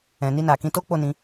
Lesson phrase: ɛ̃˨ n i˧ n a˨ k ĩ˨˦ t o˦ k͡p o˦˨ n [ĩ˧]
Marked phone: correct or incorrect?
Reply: correct